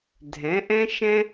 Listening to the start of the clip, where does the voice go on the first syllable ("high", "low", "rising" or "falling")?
rising